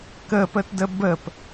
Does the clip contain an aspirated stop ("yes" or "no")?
no